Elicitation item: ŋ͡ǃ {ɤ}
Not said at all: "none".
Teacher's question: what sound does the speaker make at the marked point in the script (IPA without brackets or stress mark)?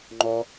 ɔ